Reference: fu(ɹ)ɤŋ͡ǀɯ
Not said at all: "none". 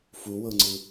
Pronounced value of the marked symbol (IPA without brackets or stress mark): w